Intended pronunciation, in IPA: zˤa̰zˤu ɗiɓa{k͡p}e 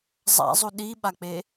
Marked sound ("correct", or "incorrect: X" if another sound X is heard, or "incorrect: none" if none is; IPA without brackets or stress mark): correct